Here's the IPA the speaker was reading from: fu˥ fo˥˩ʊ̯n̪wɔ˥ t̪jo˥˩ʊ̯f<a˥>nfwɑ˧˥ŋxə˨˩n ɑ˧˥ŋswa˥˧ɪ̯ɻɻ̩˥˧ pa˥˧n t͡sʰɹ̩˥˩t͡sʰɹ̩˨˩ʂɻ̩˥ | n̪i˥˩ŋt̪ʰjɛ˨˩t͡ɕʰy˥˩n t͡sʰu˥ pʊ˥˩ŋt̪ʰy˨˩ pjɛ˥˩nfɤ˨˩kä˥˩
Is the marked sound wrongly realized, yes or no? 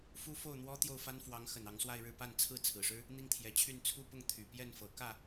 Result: no